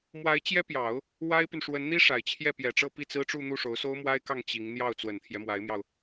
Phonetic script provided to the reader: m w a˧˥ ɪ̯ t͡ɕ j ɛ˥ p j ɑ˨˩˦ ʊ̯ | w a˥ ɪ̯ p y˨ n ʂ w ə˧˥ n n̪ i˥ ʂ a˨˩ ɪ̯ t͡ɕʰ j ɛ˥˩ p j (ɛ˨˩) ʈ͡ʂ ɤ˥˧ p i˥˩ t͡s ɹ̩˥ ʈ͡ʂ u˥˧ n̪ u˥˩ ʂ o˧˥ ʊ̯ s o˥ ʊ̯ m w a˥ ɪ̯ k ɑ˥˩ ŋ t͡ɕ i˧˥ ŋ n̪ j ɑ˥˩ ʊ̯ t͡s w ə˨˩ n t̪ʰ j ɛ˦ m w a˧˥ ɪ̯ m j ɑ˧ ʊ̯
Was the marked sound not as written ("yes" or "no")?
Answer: no